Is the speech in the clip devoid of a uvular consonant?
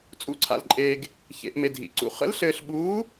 no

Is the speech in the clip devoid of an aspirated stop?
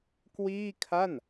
no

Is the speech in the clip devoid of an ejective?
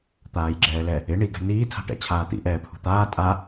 no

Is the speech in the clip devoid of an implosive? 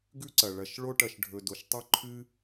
yes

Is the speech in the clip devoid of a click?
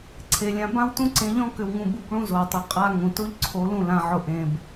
no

